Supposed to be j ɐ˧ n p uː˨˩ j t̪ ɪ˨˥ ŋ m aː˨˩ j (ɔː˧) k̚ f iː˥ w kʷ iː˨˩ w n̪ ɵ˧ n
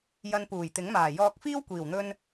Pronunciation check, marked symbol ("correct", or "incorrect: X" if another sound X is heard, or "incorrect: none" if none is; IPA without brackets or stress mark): correct